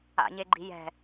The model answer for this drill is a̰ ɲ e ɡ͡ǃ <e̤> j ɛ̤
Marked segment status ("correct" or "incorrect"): incorrect